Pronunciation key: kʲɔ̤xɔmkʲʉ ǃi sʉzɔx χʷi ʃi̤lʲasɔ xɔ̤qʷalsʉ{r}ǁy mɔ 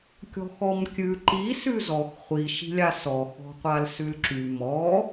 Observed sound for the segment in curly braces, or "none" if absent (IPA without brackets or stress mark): l